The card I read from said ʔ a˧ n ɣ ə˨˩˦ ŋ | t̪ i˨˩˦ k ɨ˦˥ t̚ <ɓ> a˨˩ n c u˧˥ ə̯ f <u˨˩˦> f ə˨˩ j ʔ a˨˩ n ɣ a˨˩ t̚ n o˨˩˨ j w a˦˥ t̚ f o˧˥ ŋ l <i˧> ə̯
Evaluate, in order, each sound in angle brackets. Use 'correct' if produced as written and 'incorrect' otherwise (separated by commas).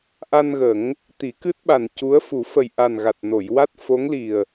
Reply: correct, correct, incorrect